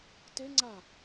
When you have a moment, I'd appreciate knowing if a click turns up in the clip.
yes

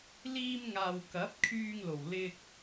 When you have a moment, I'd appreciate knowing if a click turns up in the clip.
no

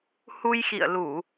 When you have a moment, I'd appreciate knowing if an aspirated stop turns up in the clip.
no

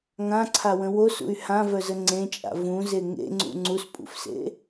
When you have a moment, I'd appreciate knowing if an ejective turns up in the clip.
yes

